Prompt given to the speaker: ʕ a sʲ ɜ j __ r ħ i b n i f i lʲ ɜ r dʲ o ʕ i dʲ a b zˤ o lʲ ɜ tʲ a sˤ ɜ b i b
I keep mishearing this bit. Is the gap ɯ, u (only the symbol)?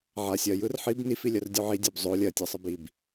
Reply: ɯ